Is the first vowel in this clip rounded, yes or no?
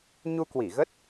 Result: yes